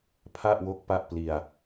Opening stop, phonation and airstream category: aspirated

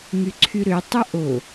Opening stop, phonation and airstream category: click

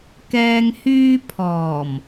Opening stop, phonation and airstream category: plain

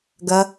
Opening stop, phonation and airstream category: plain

